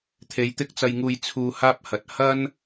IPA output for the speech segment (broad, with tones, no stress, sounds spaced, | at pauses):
t̪ʰ e˨˧ j t̪ ɪ˥ k̚ t͡s ɐ˧ j ŋ uː˧ j t͡sʰ uː˧ h aː˥ p̚ h ɐ˨ t̚ h ɐ˥ n